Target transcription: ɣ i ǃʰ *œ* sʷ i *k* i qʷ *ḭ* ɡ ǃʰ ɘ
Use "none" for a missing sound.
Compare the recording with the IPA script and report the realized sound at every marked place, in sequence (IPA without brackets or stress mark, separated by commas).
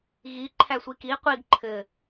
æ, k, i